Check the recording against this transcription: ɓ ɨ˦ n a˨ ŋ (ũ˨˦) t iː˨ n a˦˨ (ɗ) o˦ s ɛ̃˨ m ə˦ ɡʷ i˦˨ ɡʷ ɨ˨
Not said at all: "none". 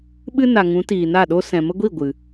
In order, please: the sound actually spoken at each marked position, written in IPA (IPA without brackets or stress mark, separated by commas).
ũ˨˦, ɗ